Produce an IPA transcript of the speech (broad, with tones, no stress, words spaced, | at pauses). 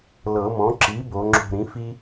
lɤ˨˩˦mɔ̃˩˥ ǁi˩˥ bo˩˥ŋ͡ǁo̤˦˨ ɾĩ˩˥fi˥